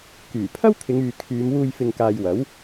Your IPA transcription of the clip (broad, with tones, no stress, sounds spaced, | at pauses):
k yː˨˩ pʰ ɐ˥ w t̪ʰ ɪ˨˧ ŋ yː˨ kʰ yː˨˧ m w uː˧ j f ɪ˨ ŋ k aː˨ j w ɐ˨˥ w